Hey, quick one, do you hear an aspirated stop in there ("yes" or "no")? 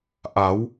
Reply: no